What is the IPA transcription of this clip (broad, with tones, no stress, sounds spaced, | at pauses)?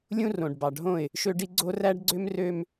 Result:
lʲ ũ˦ r õ˨ ɖ b ɑ˨ ɖʱ õ˦˨ ɪ̯ | ʃ ø˦ ɖ i˦ ɡ͡ǀ o˦ r æ˦ ɖ ɡ͡ǀ ø˦ m r ø˦ m